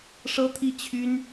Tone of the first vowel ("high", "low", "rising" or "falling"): high